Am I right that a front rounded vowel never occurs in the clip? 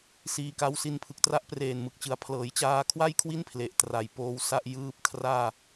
yes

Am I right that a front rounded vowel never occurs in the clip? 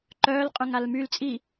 no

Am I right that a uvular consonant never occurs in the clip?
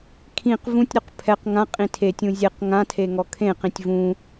no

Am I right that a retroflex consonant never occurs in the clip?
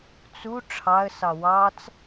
no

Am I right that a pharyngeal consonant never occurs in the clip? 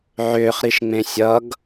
no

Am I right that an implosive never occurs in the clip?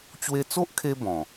yes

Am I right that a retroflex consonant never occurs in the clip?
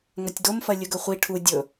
no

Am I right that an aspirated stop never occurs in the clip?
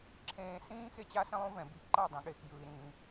no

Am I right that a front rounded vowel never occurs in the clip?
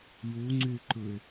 no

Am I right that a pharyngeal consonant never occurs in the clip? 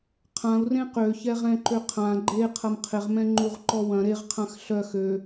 yes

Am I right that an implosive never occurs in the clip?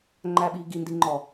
no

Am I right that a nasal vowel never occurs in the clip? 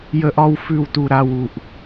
yes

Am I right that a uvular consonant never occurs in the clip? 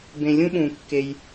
yes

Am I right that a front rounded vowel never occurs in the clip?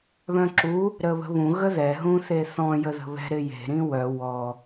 no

